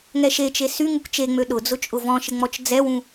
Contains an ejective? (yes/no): yes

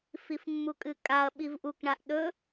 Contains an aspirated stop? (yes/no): no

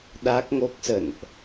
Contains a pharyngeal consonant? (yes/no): no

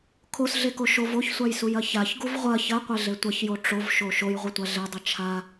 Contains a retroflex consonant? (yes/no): yes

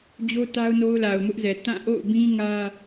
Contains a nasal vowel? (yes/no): yes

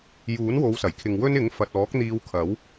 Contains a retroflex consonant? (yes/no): no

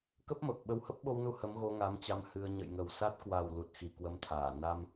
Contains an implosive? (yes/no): yes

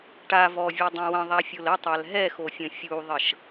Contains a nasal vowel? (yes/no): yes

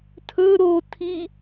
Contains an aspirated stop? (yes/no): yes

